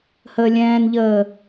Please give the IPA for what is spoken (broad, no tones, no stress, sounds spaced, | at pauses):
h əː lʲ ɛ̃ː n ʎ əː